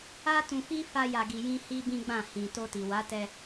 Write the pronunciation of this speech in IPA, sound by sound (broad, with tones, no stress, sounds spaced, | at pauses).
a˦ t ũ˧ f i˦ f a˦ j a˧ ɡ i˧ j ĩ˦ h i˦ b ĩ˦ ɡ͡b ã˦˨ h ĩ˨ t o˧ t i˨ w a˨˦ t ɛ˧